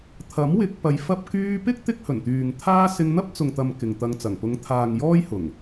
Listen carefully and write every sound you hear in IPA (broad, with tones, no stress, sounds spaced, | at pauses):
t̪ʰ ɐ˨˥ m w ɪ˧ k̚ p ɐ˧ j f ɐ˧ p̚ k yː˧ p ɪ˥ k̚ t̪ ɪ˥ k̚ h ɵ˨˩ n t̪ yː˨ ŋ t̪ʰ aː˥ s ɪ˧ ŋ n̪ ɐ˥ p̚ t͡s ʊ˨ ŋ t̪ ɐ˨ m k ɪ˨ ŋ t̪ ɐ˧ ŋ t͡s ɐ˨˩ ŋ p ʊ˨˧ ŋ t̪ʰ aː˨ ŋ j ɔː˥ j h ʊ˨˩ ŋ